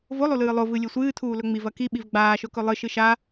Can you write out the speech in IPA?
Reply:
volˠulɨː lˠovɨ lʲesʷɨːtʰuː lɵŋ͡miv ɐki ɓivɡ͡baːʃɵkɵ lˠɨ ʃɨʃa

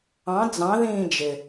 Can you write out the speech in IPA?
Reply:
ɑ̃ d͡zɑ̃ ðĩːd͡ʒɪ

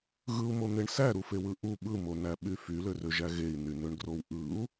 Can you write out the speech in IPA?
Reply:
ɣɯu̯mon̪eɳ sæɾufewɯ ʔu ɓɯmonæɓy fylørøʒæ ɣei̯nynøɳɡrow ʔɯu̯

